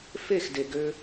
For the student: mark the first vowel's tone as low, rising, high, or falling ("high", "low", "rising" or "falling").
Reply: falling